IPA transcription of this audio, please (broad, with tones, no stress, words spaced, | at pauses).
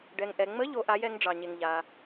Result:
ɖɛ˨ŋʔɛ˨ŋ͡mə˧˥ ʎo˧˥ʔa˧˥j ɛ˧˥ŋɖ͡ʐɑ˨ɲe˨ŋ ʎa˨